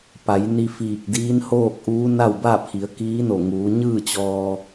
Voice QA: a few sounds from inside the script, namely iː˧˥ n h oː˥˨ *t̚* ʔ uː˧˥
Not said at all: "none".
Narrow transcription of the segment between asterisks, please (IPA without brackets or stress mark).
k̚